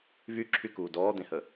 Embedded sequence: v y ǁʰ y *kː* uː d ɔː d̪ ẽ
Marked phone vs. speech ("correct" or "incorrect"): incorrect